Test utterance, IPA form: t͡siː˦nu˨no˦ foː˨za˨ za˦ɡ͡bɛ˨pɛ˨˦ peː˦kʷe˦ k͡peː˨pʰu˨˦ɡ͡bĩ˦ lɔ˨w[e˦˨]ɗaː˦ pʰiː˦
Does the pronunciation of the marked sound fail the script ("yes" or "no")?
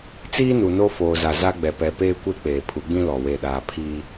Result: no